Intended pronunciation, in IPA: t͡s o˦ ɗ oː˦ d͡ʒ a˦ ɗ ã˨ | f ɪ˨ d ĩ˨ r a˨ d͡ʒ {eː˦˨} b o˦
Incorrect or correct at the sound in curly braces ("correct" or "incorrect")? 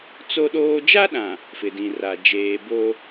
incorrect